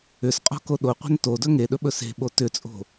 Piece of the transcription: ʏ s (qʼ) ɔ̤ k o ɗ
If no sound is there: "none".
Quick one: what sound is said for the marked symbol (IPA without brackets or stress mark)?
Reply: qʼ